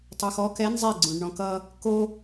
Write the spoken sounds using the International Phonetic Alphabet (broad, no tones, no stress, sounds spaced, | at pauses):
tˤ u x ɔ k ɛ n zˤ e ɡ͡ǀ ũ ɖ ɳ ɔ̃ k ʌ | k o